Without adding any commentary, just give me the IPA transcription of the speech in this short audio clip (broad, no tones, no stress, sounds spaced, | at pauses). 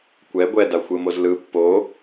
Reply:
kʷ ɛ ɡʷ ɛ d a xʷ ɯ m o z l ɯ pː o